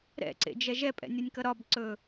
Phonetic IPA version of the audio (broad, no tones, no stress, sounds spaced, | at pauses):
ɾ ɛ̰ ǀ ḛ d͡ʒ ɛ ʒ ɛ pʼ ɛ̰ nʲ ɒ nʲ k ʌ ɾ ɒ b ǀ ɵ